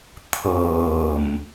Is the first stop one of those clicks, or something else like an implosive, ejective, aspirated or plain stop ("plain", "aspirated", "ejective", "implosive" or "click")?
aspirated